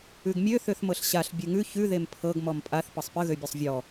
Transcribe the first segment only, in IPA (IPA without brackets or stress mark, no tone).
ʉ